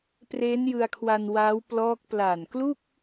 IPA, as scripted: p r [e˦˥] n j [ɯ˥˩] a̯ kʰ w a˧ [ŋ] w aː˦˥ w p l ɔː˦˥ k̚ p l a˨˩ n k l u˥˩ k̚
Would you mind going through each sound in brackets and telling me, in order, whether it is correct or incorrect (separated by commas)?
correct, incorrect, incorrect